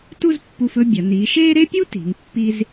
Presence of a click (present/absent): absent